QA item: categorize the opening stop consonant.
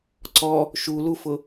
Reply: click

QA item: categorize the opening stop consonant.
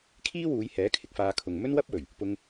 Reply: aspirated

